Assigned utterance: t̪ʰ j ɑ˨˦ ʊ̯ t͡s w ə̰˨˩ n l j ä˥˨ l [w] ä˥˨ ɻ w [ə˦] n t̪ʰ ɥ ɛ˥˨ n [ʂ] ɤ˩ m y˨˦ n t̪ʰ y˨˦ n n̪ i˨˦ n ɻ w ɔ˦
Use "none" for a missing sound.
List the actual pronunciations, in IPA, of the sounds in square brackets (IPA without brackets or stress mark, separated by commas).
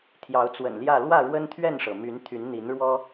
w, ə˦, ʂ